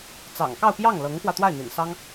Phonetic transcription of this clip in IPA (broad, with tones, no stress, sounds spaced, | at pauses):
t͡s ɑ̰˨˩ ŋ k ɑ˥˧ ʊ̯ p j ɑ˥˩ ŋ l ɤ˧˥ ŋ x w ä˧ t̪ w a˥˩ ɪ̯ n̪ ḭ˨˩ n s ɑ˥ ŋ